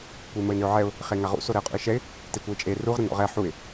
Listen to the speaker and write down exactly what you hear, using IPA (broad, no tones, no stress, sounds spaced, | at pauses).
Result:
kʷ ə ɪ̯ m ə ɪ̯ n ø ʊ̯ ʕ ɛ ʊ̯ | χ e ŋ a ʁ ṵ s o ɾ ɛ ʊ̯ qʼ ṵ ɪ̯ ʃ ɛ ɪ̯ | t e kʷ ə ɪ̯ t͡ʃʼ e r u ʁ ɾ ə n ɔ̰ ʁ ɛ ħ u ɪ̯